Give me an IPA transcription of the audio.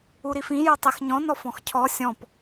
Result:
u ɾ i f ĩ j o tˤ e x ɲ ɔ̃ n ɔ f ɔ̃ x cʰ ɔ sʲ ɔ̃ p

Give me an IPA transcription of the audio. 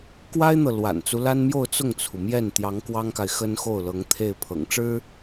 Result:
k w a˥ ɪ̯ n̪ ɤ˨ l w a̰˨˩ n t͡s u˦ l a˥ n m j o˥˧ ʊ̯ t͡s ʊ˥˩ ŋ t͡sʰ u˩ m j ɛ˥˩ n t̪ j ɑ˧˥ ŋ k w ɑ˥ ŋ k a˨ ɪ̯ x ə˥ n x o˥˩ ʊ̯ l ɤ˧˥ ŋ t̪ʰ e˥˩ ɪ̯ pʰ ɤ̰˨˩ ŋ ʈ͡ʂ ɻ̩˥

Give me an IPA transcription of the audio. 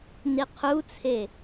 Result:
n i qʰ u t͡sʰ e

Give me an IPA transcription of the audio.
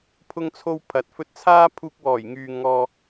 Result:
pʰ ʊ˥ ŋ t͡sʰ o˥ w pʰ ɐ˨˥ t̚ f ɵ˧ t̚ t͡sʰ aː˥ pʰ uː˧ k̚ w ɔː˨˩ j ŋ yː˨ ŋ ɔː˨

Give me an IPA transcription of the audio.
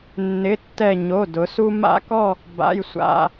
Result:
nː ɪ˩˧˩ tː ɛ˧˩ ɲ o˩˧˩ d ʊ˩˧ s u˦ m a̰˦ k ɔ˥˨ | b a̰˩˧˩ j sʷ a̰˩˧˩

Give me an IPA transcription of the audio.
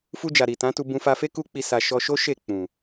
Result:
f u˧ d͡ʒ a˨ ɾ i˨ t ã˨˦ t u˧ b ũ˧ f a˧ f e˦ k u˦ k͡p i˧ s a˨ ʃ ɔ˧ ʃ o˦ ʃ e˦˨ k͡p ũ˨

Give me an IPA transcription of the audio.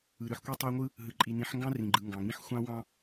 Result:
ɯ˨ ɾ ɯ˨ ħ kʷ i˦ tˤ o˦ ŋʷ ɯ˦ | ɦ ɯ˨ ǃʼ i˨ n ĩ˨˦ ħ ŋ ɡ ɑ̃˦ r ĩ˨ ɡ͡ǃ ɯ˨ ŋ ɡ ɑ̃˨ ŋ ĩ˦ ħ xʷ ɑ̃˦ w ɑ̃˦

